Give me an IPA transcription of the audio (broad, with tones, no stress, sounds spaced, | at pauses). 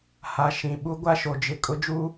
h a˨ ʃ ĩ˨ ɓ u˦ ɡʷ a˦ ʃ o˨ d͡ʒ ɪ˨ kʼ ʊ˦ d͡ʒ u˦